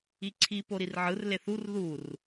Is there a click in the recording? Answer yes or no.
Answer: yes